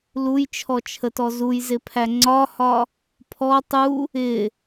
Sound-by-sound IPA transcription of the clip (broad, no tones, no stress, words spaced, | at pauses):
lujt͡ʃʰɔt͡ʃʰətɔ zujzɪpʰæ ŋ͡ǀɒhɒ | pʰɔ tˤu | ɪ